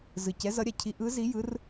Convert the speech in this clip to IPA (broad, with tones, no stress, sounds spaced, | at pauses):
z ɯ˨˩ c ɛ˨˥ z ʌ˨˥ ɾʲ a˨˩ cʰ i˨˥ ʔ ɯ˨˥ z i˨˥ j ɯ˨˥ r